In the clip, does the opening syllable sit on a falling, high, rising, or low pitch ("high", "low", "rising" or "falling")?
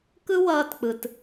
high